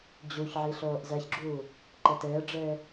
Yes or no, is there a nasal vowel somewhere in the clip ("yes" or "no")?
no